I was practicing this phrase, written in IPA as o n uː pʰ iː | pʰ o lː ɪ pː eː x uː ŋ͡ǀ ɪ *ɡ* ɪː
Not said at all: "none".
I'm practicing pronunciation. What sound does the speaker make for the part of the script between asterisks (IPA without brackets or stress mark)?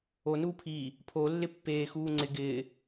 ɡ